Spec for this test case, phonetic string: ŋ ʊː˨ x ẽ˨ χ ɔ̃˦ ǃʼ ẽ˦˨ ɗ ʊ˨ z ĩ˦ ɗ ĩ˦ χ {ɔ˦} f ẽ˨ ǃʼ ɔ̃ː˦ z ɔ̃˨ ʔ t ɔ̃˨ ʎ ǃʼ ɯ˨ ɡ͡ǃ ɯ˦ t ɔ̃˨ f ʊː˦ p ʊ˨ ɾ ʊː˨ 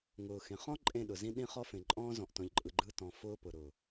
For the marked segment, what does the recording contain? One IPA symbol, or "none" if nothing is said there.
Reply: ɔ˦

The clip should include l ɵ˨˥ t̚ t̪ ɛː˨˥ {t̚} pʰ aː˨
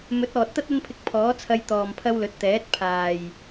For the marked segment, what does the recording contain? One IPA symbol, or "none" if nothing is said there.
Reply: t̚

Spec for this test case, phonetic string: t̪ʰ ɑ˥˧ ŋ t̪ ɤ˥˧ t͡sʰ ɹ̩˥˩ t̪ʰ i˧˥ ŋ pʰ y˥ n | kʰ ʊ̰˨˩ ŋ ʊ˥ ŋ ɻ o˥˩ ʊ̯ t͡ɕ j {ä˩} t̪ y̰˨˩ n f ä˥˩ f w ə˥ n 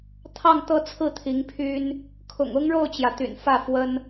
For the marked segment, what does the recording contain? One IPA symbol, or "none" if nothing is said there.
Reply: ä˩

